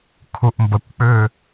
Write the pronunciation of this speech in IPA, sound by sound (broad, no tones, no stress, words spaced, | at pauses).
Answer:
kʰuʔmbəkʷk͡pʏː